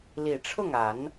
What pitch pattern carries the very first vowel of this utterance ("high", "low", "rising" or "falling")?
low